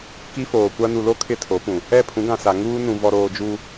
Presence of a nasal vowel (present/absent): present